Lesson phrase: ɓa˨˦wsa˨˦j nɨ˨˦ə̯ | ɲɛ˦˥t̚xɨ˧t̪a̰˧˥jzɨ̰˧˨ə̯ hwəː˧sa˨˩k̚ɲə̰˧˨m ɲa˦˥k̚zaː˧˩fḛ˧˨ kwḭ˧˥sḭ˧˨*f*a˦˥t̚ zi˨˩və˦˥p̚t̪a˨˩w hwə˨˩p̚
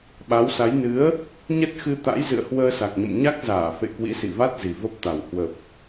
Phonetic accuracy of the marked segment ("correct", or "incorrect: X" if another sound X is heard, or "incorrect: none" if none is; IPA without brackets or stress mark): incorrect: v